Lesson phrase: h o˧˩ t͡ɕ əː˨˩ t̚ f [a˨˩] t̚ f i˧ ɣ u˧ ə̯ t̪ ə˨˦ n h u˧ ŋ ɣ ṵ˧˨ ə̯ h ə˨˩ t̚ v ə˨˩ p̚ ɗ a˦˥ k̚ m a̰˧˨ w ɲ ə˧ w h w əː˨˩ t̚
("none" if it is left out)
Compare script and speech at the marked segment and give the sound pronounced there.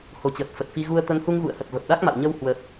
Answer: ə˨˩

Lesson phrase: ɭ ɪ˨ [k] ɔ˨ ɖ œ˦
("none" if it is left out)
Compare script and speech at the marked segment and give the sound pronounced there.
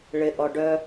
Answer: ʔ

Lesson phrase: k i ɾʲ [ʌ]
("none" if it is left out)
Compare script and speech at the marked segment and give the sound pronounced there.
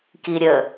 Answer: ə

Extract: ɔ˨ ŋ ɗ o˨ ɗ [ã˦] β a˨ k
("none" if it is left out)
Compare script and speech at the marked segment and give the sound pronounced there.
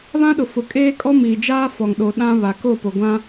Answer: ã˦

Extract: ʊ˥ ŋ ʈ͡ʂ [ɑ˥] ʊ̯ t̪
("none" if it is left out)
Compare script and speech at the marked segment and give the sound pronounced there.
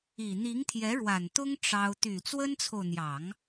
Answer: ɑ˥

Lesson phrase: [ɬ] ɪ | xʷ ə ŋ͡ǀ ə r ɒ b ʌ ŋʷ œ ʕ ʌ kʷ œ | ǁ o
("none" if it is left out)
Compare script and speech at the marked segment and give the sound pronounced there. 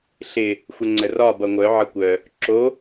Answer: ɬ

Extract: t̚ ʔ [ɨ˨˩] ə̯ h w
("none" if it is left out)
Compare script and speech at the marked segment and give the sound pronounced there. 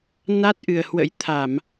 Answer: ɨ˨˩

